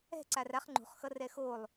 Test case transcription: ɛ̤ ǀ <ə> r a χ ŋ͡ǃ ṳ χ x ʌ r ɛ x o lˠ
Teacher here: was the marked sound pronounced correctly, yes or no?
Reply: no